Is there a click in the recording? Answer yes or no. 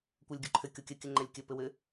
yes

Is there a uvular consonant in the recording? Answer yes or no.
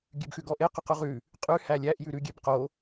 yes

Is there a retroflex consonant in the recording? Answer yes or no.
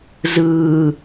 no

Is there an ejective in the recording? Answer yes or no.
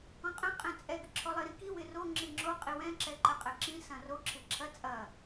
yes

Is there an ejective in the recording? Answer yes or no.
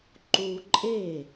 yes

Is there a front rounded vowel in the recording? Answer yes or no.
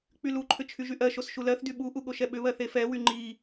yes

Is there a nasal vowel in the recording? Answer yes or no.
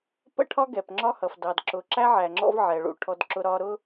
no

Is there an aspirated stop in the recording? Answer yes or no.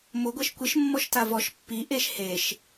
no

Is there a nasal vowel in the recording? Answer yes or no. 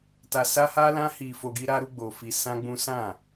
yes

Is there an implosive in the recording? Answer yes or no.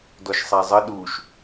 yes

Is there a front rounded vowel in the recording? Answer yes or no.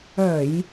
yes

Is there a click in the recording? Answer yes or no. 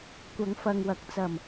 no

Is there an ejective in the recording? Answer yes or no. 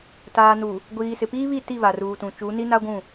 no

